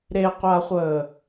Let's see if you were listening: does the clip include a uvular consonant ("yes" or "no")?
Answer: yes